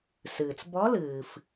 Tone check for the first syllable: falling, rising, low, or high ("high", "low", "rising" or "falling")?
low